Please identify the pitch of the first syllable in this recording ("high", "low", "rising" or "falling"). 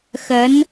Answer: rising